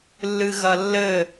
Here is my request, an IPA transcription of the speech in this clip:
lːɨɣɐlːɘ

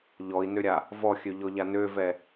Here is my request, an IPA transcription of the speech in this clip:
ʎɔi̯nøɾʲa | vɔxʲøʎɔʎa nøvɛ

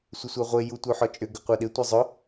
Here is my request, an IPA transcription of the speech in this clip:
sʷɪsʷaʁʷe jutʷœħɔt͡ʃʼʏ ɡʏqʷaɗɪ tʷɐzˤʊ

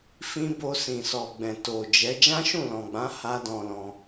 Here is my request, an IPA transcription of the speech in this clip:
fĩ˦ bo˧sĩ˨sɔ˨ɡ͡bɛ̃˨ to˨d͡ʒɛ˨˦ d͡ʒã˦ʃũ˦˨lɔ̃˨ɡ͡bã˨˦ ha˦dɔ̃˧lɔ̃˧

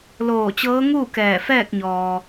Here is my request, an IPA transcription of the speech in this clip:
loː˧˩t͡ɕɤː˧˥ŋuː˥˨ kɛː˧˩fɛː˥˨k̚ɲɔː˩

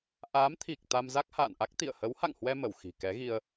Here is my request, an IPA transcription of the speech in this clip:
ʔaː˨˦mt̪ʰi˨˩k̚ t̪a˧mza˦˥k̚ha̰ː˧˨nʔa˦˥k̚ t̪ḭ˧˨ə̯ hə˨˦wha̰˧˨ŋhwɛ˧ mə˧˩wxi̤˨˩kɛ˨˦ɣi˧ə̯

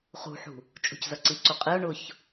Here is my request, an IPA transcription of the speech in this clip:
χṳħṳ | t͡ʃʼṳczʌǀiǀu qʼiʊ̯ ɳʊç

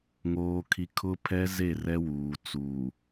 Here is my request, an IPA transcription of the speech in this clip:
ŋoː˦kʰi˦ kʰʊ˦pʰɛ˦ ze˦˨rɛ˦wuː˨ t͡suː˨

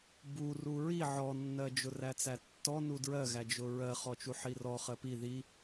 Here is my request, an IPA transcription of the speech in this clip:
bu ruɹi ʕɔnːɜd͡ʒʊ ræt͡sætːɔnu dɹɜɣæd͡ʒʊ ɹɜ χɔt͡ʃuħirɔ χɜpi ði

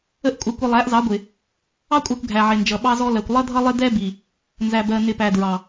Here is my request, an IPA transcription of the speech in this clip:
ə˦ʔkʷʼʌ˧kʷə˧ lˠæ˨˦ʔzɑ˨˦ɡʷɪ˨ | ɑ˦kʷʼæ˧kʷ ɡʱæ˨ʕɪ˨nd͡ʒʌ˨ ɓɑ˧zɔ˧ lɜ˨kʷlˠʌ˦dʱʌ˦lˠɪ˦ dɛ˦bi˨ | nzæ˨bɜ˨nɪ˨ pæ˨dɹɑ˨

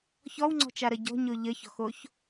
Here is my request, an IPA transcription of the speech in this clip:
çɔwŋ͡ǀɔ̤t͡ʃaɾʌ ɟɔ̤ɲo ʎəçɔ̤xoç

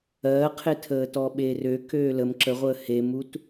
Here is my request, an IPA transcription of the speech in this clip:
ɜːqʰe tʰəːtɔɓerø køːləm ǁəʁʷəː hemut

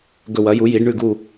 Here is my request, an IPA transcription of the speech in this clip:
ɡɵ˧˩wɐ˩˥ju˩˥ji˩˥ɖ ɳʉ˧˩ɡu˧˩

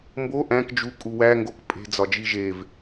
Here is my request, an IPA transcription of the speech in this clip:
mbo ʔæ̃k d͡ʒu kʼuwæ ŋɡokpʼe̤ d͡zɒd͡ʒiʒev

